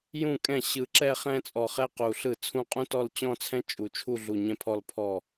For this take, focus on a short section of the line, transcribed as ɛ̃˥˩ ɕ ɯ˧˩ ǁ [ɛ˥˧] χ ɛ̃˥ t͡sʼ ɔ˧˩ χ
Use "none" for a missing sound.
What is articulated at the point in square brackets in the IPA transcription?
ɛ˥˧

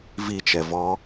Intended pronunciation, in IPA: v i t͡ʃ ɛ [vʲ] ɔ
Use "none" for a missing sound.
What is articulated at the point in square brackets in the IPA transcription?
v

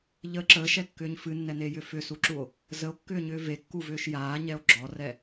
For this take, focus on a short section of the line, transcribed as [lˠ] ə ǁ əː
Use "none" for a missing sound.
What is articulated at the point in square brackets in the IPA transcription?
ʎ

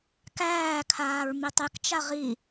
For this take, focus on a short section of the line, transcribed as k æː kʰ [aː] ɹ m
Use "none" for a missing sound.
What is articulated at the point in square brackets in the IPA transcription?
aː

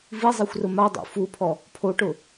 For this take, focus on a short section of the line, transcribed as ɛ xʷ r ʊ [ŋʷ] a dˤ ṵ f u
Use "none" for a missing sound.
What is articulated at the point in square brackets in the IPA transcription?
m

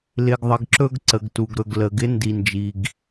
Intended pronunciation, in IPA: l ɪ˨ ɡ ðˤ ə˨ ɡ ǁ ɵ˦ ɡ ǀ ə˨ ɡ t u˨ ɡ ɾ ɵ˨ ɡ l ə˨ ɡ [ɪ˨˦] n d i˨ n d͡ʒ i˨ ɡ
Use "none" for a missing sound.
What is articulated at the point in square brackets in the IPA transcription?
ɪ˨˦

